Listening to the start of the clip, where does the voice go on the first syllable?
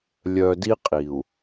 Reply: low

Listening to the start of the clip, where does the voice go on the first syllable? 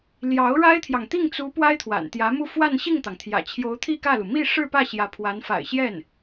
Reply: rising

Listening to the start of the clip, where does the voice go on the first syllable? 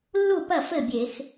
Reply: falling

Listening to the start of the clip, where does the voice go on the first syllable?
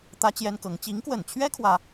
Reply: high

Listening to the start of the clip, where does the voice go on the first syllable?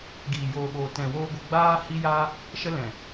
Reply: low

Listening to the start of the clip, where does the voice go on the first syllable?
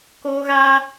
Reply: high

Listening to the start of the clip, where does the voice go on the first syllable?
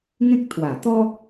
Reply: high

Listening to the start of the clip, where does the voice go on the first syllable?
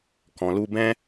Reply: low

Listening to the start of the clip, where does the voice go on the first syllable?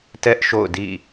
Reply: high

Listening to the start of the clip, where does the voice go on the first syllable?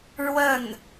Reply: falling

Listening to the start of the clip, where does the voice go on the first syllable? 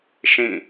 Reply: falling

